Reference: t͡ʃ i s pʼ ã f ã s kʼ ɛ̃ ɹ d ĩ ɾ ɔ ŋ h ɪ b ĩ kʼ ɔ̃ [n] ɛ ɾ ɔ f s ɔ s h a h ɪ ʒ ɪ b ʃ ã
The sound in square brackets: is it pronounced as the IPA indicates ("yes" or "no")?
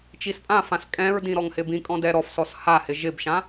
no